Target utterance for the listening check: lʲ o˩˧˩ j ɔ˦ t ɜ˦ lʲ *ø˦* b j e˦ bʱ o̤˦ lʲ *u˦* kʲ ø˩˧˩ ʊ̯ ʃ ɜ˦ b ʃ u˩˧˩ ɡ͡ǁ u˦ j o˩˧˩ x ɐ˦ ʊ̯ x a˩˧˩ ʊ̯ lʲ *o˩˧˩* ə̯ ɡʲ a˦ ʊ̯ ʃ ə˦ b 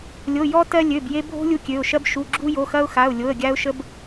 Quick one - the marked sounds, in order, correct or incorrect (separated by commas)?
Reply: incorrect, correct, correct